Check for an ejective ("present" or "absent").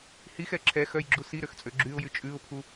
present